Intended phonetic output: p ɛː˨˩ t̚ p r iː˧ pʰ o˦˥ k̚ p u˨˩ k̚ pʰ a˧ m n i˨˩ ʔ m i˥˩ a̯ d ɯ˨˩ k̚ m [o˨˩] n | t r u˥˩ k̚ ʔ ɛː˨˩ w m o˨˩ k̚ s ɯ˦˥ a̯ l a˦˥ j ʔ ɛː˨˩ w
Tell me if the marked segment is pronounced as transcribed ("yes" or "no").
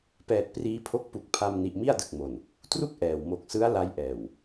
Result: yes